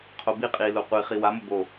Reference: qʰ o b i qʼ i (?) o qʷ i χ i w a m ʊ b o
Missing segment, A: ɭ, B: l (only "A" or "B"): B